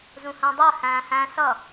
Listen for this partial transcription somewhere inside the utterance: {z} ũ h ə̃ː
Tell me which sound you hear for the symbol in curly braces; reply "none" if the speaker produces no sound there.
z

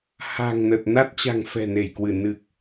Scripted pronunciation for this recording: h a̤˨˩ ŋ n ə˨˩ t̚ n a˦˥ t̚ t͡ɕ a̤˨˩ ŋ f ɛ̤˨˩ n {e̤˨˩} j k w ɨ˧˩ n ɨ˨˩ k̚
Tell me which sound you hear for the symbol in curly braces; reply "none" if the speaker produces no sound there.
e˧˩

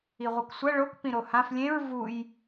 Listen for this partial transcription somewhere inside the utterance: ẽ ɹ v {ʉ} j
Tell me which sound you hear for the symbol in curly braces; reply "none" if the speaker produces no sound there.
u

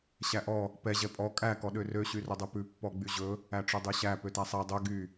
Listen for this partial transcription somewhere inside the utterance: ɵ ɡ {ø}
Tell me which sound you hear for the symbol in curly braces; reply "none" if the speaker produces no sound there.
y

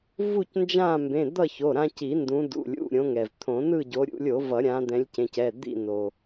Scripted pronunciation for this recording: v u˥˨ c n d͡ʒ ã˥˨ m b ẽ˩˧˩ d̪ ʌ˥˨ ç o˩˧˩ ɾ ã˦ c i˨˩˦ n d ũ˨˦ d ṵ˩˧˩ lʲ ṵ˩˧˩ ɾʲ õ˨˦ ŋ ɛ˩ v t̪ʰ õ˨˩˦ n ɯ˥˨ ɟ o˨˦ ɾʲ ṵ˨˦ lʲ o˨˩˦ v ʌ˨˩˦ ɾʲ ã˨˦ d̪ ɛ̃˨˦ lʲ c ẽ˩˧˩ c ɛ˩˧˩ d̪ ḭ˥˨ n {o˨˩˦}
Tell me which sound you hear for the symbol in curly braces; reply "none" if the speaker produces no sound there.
o˩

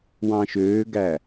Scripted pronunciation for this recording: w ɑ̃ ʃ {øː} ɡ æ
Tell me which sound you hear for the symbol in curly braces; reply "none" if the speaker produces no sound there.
øː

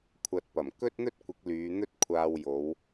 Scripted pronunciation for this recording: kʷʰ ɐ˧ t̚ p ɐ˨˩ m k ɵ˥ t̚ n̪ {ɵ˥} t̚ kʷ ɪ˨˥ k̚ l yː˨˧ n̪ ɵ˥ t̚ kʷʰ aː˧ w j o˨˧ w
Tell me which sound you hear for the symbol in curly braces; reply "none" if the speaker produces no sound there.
ɵ˥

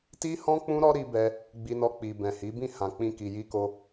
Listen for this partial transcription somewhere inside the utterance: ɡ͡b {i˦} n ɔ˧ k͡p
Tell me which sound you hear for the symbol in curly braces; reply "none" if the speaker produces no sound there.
i˧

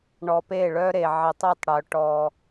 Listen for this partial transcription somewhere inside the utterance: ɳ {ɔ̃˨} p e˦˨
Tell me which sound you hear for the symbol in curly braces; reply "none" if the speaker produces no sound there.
ɔ˨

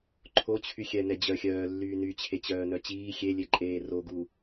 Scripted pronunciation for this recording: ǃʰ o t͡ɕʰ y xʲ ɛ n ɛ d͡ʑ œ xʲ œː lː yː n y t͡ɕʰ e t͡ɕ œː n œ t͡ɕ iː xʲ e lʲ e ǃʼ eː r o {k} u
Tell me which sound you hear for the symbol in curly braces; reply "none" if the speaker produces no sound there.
ɡ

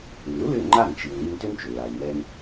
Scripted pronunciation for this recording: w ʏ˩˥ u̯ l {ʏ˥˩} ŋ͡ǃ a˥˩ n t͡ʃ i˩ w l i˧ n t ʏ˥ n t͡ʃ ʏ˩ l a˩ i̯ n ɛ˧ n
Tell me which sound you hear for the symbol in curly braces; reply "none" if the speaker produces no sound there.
ʏ˥˩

